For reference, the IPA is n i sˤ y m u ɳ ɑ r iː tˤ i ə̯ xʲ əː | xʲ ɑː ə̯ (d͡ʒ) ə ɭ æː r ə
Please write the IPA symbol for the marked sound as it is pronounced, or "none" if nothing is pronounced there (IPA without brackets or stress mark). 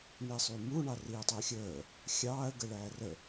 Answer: ɡ